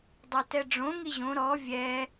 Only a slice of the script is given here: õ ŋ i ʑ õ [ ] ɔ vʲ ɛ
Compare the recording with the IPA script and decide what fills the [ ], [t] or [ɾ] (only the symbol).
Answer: ɾ